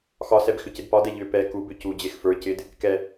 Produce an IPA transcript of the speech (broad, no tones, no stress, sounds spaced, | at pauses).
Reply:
x ɒ s ɛ b x ʏ c ɪ d p ɒ d ɛ ʎ ʏ p ɛ k u b ʏ c u d͡ʑ e x f ə˞ c ɪ d | k ɛ